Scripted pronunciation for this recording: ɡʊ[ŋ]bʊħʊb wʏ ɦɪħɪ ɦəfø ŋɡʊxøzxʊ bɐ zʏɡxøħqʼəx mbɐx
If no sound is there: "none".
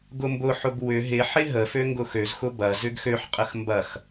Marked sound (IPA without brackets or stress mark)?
m